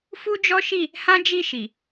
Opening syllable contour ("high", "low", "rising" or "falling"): high